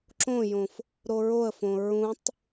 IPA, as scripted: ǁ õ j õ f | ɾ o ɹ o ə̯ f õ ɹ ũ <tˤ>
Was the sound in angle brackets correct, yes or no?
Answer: yes